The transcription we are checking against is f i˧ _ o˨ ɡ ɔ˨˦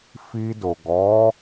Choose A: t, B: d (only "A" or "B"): B